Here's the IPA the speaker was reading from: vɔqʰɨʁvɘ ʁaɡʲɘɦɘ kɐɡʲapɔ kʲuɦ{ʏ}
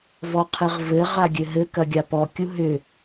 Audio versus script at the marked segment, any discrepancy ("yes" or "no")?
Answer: no